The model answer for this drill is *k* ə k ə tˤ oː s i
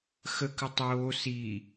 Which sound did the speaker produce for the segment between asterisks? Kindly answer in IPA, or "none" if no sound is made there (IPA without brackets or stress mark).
x